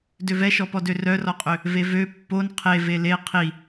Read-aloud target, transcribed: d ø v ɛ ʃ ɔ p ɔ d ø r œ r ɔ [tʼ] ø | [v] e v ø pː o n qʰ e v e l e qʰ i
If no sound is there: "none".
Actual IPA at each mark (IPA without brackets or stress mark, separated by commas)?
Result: qʼ, v